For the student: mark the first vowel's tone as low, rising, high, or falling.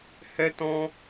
high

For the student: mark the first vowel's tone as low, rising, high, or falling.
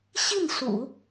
falling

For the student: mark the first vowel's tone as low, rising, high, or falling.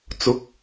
rising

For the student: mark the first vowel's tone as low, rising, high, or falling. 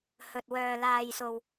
low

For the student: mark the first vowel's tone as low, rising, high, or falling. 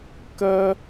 high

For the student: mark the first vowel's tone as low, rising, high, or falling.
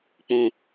low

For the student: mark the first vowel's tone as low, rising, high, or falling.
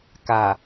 low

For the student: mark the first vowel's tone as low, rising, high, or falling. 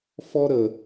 high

